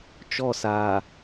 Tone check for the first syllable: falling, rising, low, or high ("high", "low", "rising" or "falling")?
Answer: falling